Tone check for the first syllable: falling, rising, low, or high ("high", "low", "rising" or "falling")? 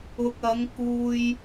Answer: low